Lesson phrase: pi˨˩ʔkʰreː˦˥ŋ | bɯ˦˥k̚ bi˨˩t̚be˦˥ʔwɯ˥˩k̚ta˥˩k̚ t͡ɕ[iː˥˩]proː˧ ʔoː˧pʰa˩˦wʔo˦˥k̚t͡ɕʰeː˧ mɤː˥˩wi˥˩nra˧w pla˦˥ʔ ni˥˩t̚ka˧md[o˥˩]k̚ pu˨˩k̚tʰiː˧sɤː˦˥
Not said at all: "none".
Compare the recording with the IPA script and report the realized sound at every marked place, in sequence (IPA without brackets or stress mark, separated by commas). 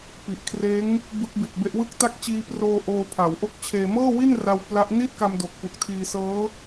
iː˧, o˨˩